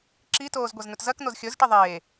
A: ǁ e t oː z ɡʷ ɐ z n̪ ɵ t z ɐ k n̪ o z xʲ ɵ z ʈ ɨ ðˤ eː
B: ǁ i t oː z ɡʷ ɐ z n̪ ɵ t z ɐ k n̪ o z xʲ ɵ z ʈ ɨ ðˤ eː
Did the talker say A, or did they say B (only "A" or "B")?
B